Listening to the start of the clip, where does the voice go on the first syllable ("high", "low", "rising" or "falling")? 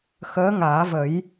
rising